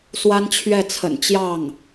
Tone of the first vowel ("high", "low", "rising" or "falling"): high